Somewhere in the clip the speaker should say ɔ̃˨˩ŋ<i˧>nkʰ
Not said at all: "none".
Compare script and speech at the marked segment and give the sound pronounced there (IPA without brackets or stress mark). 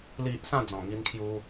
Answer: i˧